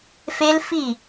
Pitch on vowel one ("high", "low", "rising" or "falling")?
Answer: high